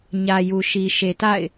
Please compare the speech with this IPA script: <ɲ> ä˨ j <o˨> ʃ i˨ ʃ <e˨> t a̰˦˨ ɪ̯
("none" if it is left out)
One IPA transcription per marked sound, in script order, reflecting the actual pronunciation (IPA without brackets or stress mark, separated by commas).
ɲ, u˨, e˨